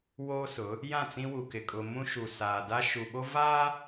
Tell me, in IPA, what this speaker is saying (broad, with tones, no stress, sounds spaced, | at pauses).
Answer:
w oː˦ s ʊ˨˦ | j ã˦˨ t͡s ĩ˦ w u˨ k ɪ˨ kʼ ʊ˨ m ũ˦ ʃ u˨ s aː˨ d a˦ ʃ u˨ ɓ o˦ v aː˦